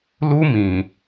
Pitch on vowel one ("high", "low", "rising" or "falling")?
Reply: high